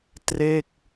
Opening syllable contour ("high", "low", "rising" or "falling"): falling